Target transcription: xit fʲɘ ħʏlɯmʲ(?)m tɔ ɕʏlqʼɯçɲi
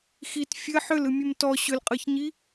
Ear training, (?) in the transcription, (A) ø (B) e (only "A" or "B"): A